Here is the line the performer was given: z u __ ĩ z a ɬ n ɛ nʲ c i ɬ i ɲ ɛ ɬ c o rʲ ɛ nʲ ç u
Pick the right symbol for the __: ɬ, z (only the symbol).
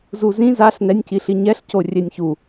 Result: z